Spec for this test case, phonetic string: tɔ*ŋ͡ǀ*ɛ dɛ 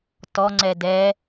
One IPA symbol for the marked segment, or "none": ŋ͡ǀ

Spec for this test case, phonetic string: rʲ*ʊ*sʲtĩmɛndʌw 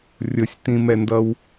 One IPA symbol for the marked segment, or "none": ʊ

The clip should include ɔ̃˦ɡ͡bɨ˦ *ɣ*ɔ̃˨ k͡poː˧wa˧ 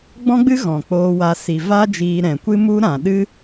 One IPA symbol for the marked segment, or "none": ɣ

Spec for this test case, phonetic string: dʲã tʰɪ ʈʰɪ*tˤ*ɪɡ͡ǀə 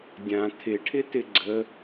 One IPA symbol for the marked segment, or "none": t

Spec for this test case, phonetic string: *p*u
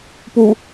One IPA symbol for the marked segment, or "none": p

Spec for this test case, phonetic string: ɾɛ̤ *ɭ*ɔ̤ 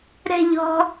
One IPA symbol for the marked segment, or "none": ʎ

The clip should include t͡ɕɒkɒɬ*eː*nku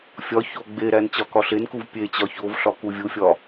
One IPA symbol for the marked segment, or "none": e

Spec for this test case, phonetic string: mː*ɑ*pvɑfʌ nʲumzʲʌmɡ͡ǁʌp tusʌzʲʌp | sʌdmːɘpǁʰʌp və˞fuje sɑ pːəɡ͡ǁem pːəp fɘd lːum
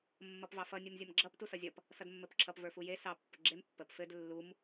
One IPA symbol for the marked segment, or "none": ʌ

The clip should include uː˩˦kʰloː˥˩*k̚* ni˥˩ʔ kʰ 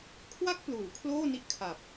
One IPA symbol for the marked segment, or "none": none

